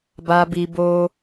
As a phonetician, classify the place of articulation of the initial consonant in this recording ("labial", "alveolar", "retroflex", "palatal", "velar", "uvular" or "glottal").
labial